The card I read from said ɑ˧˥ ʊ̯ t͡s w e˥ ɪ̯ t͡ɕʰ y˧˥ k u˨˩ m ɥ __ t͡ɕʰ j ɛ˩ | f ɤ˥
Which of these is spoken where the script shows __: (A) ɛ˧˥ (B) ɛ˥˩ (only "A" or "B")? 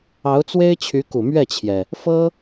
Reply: B